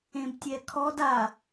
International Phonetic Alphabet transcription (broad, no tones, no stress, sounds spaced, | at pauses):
ẽ b tʲ ɛ kʰ ɔ d a